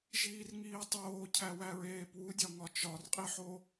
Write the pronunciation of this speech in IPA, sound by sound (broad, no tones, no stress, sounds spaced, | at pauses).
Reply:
ʒ iː r ŋ iː tˤ oː cʰ æ w æ ɹ eː p w u dʲ ɒ ŋ ɒ t͡ʃ ɒ r qʼ i ħ o